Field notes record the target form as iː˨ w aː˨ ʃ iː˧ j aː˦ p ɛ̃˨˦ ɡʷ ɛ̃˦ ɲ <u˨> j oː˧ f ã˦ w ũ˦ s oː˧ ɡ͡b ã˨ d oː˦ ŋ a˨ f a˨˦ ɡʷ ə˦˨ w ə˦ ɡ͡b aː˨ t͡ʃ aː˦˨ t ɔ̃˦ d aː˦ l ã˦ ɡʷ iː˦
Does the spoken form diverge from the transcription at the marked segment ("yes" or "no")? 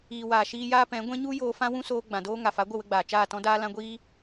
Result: yes